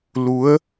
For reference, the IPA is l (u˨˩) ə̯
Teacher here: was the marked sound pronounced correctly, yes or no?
no